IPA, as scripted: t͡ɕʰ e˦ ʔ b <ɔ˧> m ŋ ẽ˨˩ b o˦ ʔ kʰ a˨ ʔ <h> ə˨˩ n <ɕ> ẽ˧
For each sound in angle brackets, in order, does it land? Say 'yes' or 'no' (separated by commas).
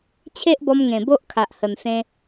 yes, yes, no